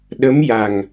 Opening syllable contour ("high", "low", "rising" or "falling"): rising